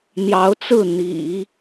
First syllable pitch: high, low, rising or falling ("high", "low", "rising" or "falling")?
rising